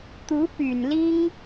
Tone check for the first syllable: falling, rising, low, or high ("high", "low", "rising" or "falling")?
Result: rising